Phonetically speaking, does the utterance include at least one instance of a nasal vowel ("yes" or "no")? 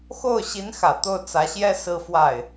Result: no